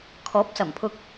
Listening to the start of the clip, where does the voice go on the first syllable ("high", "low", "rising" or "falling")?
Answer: rising